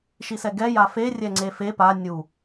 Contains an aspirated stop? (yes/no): no